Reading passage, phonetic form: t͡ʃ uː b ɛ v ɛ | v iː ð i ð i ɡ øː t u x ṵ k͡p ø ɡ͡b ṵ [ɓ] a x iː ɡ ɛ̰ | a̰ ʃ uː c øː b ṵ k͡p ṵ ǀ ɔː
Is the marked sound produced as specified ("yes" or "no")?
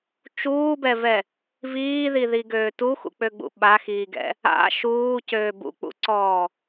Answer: yes